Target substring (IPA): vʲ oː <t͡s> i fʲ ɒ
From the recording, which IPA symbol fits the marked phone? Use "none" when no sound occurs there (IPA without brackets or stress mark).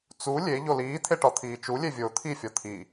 t̪ʰ